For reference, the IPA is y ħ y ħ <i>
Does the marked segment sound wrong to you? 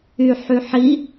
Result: no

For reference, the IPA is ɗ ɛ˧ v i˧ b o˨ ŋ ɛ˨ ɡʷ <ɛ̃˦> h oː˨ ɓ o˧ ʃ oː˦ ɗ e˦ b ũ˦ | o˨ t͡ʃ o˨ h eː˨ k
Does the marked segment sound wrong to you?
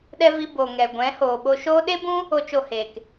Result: yes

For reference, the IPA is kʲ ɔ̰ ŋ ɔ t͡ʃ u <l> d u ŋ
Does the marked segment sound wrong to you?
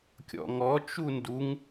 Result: yes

